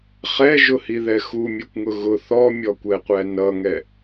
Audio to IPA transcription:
χ ɛ ʒ ʊ h i ð ɛ x u mʲ ɛ kʷ ŋ ʊ ɣ ʊ θ ɔ mʲ ɔ kʷ ɛ qʷ æ n ʌ ŋ ɛ

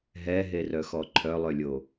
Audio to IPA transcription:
ɦ ɛ ɦ e r œ x ɔ ǃʰ œ lˠ ø lʲ o

